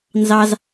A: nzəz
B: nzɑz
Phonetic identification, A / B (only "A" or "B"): B